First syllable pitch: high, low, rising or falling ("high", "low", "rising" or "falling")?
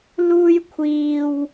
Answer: high